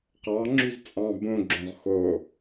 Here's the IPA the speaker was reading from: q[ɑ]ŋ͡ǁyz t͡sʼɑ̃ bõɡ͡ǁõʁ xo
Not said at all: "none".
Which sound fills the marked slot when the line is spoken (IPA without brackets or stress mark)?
ɑ